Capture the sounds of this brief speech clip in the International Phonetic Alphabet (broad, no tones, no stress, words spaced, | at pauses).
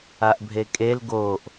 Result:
aʔbʱekʼel ɡoːʔ